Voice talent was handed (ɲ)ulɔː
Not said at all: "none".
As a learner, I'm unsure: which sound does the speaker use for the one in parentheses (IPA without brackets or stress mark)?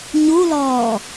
ɲ